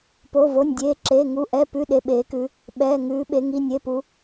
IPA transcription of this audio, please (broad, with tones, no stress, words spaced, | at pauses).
po˩˧˩vo˩˧˩nʲdʲeː˩˧˩ǁeː˩˧˩ ŋu˩˧˩ ʔɛ˩˧˩pʉ˩˧˩ ɗe˩˧˩ɓeː˩˧kʉ˩˧ | ɓɛː˩˧˩ ŋʉː˩˧ɓe˩˧ŋi˩˧˩ nʲe˩˧˩pu˩˧